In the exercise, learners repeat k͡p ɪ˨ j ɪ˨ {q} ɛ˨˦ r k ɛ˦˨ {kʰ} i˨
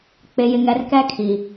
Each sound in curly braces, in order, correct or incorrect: incorrect: ŋ, correct

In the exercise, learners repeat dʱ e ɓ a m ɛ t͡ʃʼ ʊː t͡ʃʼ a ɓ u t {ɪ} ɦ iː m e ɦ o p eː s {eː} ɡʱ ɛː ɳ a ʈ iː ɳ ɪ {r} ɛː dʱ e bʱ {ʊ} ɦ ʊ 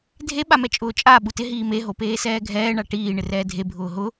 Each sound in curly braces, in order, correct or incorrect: correct, incorrect: ɛː, correct, incorrect: ʊː

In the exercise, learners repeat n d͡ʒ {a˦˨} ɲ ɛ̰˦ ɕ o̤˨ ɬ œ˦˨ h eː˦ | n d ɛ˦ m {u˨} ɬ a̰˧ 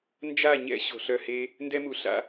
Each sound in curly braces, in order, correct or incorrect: correct, correct

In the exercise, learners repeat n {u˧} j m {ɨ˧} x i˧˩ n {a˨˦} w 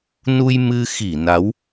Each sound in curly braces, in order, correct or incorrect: correct, correct, correct

